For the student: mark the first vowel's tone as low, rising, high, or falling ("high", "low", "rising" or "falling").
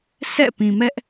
falling